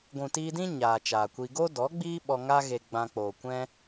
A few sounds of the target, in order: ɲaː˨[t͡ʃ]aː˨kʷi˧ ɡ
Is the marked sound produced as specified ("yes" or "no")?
yes